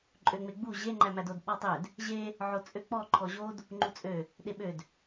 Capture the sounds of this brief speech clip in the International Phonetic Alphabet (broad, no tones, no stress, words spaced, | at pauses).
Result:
ǃʼøŋ͡meɡ͡bu ʑe ŋ͡ǃæmædod ɓɔtˤød | ʑe | ʕot͡sʼøk͡pɔ ǃʰɔʑod | ŋ͡ǃut͡sʼø | ɗeɓød